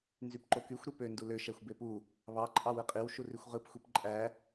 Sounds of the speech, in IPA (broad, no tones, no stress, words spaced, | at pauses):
nzypǃokyxʷɾy pø ndulø ʃæxʷbepu | βɑǃʼɑ wɯqʼiw ʃurixʷʁɯp xʷipǃʼæ